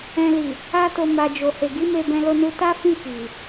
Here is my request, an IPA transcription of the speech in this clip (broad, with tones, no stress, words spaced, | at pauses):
ɛ̃˨li˨ | a˧to˨ ma˨d͡ʒo˨he˨ɡi˨˦ me˧bɛ̃˧lo˧nu˧ ta˦fĩ˦˨ki˨